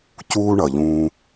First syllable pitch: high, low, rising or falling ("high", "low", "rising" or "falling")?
high